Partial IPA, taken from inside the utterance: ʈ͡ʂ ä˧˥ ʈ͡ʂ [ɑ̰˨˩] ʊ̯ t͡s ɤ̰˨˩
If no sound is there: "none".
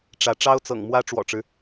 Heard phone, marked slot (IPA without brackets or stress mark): ɑ˥